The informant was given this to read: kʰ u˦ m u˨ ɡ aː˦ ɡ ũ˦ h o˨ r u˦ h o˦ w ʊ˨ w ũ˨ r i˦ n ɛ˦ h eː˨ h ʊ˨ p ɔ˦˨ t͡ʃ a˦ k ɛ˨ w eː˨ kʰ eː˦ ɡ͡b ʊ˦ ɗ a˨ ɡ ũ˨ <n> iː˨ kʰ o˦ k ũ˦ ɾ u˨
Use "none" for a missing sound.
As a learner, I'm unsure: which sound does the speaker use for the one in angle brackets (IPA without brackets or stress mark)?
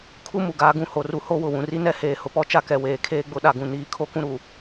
n